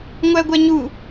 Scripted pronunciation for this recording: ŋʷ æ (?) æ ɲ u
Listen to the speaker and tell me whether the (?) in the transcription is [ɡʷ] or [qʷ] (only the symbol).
ɡʷ